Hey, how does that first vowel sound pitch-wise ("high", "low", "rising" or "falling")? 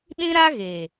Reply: high